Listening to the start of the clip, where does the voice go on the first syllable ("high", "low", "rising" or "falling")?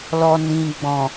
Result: low